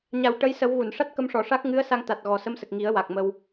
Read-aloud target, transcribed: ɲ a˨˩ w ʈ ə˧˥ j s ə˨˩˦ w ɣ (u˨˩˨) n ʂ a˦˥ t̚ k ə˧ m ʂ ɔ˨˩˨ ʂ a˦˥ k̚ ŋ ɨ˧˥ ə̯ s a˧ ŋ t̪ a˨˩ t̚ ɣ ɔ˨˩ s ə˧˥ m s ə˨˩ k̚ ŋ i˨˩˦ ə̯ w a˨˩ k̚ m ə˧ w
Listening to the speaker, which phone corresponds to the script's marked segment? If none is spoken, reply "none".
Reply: u˨˩˨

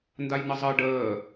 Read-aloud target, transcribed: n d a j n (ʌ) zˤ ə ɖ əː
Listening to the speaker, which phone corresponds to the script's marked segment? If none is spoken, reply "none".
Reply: ə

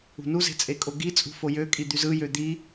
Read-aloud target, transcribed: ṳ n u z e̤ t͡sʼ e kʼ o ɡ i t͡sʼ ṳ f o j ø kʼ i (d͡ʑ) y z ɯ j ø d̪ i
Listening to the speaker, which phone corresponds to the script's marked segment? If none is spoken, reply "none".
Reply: d̪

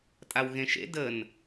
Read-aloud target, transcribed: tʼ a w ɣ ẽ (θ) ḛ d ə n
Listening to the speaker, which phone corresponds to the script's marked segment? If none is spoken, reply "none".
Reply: ʃ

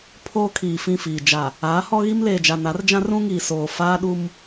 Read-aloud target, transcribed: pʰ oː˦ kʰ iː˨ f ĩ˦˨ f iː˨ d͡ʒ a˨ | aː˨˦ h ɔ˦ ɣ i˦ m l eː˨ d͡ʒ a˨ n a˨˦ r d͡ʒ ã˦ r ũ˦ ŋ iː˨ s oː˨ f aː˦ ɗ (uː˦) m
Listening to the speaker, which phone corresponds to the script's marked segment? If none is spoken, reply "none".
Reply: u˦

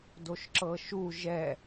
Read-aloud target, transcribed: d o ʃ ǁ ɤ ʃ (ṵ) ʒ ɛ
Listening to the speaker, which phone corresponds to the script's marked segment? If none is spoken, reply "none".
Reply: u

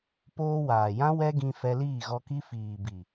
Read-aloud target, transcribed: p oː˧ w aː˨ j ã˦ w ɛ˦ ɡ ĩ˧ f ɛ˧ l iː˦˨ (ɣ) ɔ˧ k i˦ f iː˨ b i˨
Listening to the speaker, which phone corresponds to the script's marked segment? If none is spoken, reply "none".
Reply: ɣ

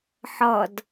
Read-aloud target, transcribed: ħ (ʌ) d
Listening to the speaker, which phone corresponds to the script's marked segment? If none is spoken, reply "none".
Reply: ʌ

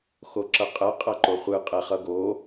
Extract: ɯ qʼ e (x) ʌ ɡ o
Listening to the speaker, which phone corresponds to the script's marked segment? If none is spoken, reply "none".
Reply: χ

